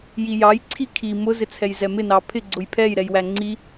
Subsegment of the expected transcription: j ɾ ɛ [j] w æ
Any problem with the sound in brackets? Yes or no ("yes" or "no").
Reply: no